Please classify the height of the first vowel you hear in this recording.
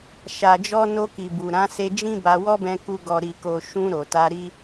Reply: low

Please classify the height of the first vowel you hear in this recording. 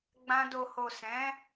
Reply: low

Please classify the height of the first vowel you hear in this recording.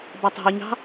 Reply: low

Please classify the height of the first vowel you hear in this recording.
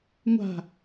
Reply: low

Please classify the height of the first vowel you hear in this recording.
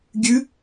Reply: high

